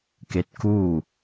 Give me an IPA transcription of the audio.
ke˧˥t̚ kuː˥˨

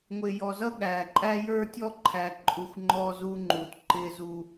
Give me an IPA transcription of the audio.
ŋʷɪː˨jɔ˨zʌ˦ ɠæː˨ǃʼæ˦ jə˞˦ tʲɔ˦ ǃʰæ˨ ǃʼu˨xʷ ŋ͡ǃɔː˦zuː˦ŋ͡ǃuː˨t ǃɪː˦zu˦

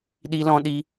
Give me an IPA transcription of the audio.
ɗi˦lɔ̃˦ɗi˦

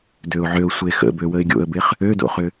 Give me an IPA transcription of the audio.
døʊ̯ʕøʊ̯ sʷexə̰bø wəɪ̯ɡʲo̰ə̯beχ | ødo̰χʏ

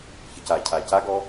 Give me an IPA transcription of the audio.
çəcacʰa caɡɔ

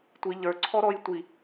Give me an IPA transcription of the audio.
tʷi ʎə˞ǀʰɔɾɔj tʷi

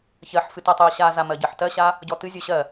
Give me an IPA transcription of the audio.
çɜħfɨ tɜtˤɨɐ̯ɕaza mɜɟɜħtɜɕa | ɟɔtɨzʲo ɕɜ

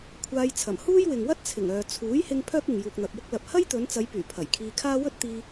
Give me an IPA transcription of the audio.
kʷʰaː˧jt͡sʰɐ˨˩m huː˥jwɪ˨ŋwɐ˥t̚t͡sʰɪ˨˩ŋ œː˨t͡sʰuː˨˥jhɪ˧ŋ pʰœː˥k̚ɪ˨ŋ juː˨k̚n̪ɐ˨p̚wʊ˥k̚lɐ˨p̚ hɐ˥jt̪ɵ˨˧nt͡sɐ˨˧jpyː˨˩ pʰɐ˨˩jkʰiː˧kʰaː˥ wɵ˥t̚t̪iː˧

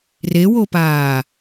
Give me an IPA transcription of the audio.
rewopaː

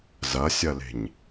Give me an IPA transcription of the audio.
zɐsʲɐle̤ɲ

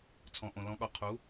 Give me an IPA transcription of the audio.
t͡sʰɔ̃˩ʔõ˩ lɔ̃˩˧ɠɔ˩ qʰu˩˧

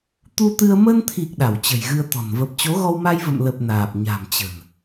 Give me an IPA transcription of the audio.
t̪u˧t̪ɨ˧ə̯ mə˧nt̪ʰi˨˩k̚ ɗa˧˩wt͡ɕə̤˨˩jɣɨ˧ə̯t̪ɔ̤˨˩n və˨˩p̚t͡ɕo˨˦ɣɔ˧w ma˧j və̰˧˨mlə˨˩p̚ naː˨˩p̚ɲa̤˨˩mt͡ɕə̤˨˩n

